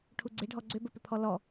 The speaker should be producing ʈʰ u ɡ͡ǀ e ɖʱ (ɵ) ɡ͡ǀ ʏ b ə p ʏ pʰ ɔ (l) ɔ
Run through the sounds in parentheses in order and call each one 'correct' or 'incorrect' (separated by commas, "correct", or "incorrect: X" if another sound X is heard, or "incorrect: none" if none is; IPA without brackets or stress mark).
incorrect: ɔ, correct